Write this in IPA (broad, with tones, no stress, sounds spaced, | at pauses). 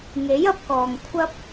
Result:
ŋ e˨˥ j ɐ˨˥ p̚ k ɔː˨ ŋ kʷʰ ɐ˥ p̚